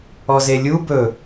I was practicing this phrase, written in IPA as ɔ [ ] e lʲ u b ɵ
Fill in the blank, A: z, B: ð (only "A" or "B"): A